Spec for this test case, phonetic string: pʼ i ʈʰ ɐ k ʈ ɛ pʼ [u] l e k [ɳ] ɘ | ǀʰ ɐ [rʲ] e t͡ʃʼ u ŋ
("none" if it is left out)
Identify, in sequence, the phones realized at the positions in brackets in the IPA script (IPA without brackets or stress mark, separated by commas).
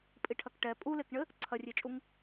u, ɳ, rʲ